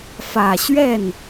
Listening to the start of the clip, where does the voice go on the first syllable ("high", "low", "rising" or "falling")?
low